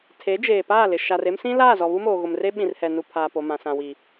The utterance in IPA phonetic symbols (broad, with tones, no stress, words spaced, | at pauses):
tʰe˨˦d͡ʒeː˨ paː˦˨lɪ˨ ʃa˨re˦msĩ˦ laː˦˨zɔ˨ βu˦moː˨ ɣʊ˨mre˦ ɓĩ˨rhɛ˨ nu˨ pʰaː˨po˨mã˨ sã˨wi˨